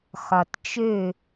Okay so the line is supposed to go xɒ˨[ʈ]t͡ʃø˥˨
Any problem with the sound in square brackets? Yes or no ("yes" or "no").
yes